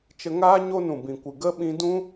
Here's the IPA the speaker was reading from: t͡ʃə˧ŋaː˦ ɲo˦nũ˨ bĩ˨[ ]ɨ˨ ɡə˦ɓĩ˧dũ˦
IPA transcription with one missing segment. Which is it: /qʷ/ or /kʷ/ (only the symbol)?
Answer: kʷ